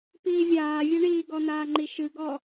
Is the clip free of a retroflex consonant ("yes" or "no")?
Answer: no